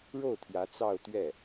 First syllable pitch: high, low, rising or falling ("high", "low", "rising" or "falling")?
falling